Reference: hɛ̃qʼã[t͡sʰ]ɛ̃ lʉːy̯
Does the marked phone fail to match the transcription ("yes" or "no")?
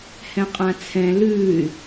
no